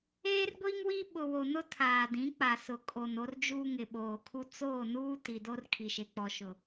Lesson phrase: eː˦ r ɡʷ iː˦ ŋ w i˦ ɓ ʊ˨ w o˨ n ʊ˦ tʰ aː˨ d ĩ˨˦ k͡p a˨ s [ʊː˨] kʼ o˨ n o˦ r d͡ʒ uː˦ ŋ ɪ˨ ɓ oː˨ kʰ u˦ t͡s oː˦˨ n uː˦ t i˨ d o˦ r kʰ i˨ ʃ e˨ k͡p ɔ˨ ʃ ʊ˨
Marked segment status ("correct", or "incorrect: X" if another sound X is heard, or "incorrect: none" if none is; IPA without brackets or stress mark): incorrect: ʊ˨